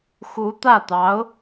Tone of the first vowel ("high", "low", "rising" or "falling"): rising